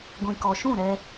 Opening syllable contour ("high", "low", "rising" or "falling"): low